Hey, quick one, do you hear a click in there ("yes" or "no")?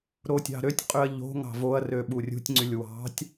yes